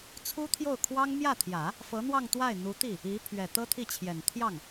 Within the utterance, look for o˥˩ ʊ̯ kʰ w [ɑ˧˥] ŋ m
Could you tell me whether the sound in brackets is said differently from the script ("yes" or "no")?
yes